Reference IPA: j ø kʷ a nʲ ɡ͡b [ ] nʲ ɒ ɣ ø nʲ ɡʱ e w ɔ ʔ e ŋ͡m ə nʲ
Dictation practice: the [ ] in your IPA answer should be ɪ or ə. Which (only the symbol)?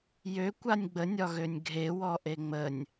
ə